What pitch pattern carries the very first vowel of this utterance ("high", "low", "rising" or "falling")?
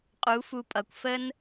rising